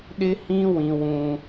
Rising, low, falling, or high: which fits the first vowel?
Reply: high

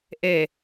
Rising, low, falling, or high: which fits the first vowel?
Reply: low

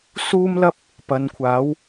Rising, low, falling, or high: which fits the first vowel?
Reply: high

